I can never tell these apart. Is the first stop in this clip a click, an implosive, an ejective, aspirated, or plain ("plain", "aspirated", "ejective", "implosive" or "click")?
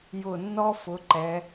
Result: click